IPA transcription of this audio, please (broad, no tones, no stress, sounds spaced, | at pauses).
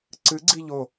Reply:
ǀ ɨ ɡ͡ǀ i ʎ o